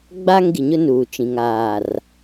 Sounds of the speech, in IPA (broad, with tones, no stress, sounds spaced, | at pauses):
ɡ͡b a˦ ŋ ɡ i˨ ɲ ʊ˦ n uː˨ t͡ʃ ĩ˨ ŋ aː˨ r